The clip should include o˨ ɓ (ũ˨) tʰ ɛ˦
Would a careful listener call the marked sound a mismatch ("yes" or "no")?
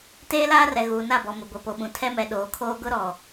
no